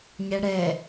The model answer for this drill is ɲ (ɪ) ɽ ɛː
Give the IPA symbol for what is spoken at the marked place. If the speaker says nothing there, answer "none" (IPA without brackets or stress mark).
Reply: ɛ